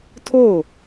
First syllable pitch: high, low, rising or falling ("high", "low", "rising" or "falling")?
falling